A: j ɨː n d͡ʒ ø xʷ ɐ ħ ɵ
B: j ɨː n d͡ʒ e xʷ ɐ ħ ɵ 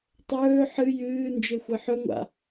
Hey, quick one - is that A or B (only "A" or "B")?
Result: B